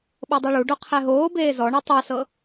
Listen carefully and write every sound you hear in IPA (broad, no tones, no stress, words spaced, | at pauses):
ɓɤdˤiɭuɖo qʰɛɦoːbeː zɔ ɳotˤasɤ